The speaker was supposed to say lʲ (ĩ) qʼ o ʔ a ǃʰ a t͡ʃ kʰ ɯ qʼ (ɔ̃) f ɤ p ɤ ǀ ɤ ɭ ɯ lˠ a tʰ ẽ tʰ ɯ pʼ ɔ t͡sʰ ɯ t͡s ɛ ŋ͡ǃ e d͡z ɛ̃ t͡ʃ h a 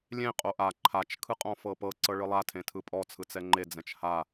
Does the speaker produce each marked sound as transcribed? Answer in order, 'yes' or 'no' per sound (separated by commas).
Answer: no, yes